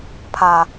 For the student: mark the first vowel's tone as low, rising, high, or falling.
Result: low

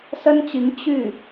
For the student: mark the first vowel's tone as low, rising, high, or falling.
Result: high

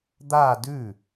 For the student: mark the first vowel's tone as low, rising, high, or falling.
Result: falling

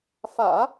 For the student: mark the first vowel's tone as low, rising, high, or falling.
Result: low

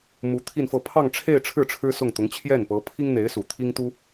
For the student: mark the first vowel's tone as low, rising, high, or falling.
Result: rising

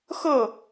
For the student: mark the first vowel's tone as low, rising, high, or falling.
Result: falling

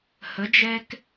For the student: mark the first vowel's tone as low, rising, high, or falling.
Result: rising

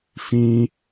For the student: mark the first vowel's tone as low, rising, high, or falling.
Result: high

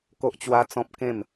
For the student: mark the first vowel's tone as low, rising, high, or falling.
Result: high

